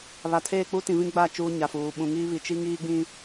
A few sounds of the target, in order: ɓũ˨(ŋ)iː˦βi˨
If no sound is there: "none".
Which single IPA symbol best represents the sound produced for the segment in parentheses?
ŋ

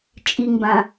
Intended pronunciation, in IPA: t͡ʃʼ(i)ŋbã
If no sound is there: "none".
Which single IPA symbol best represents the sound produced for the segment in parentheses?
i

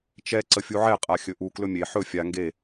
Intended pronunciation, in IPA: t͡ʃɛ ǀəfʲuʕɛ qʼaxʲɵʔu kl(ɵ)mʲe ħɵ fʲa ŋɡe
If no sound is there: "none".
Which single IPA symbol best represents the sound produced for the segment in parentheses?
ɵ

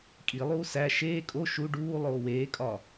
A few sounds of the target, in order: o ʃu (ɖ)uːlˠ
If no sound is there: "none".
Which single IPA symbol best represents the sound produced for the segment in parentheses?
ɖ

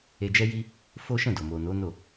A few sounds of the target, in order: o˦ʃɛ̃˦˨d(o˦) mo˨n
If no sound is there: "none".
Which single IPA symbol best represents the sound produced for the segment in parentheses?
o˨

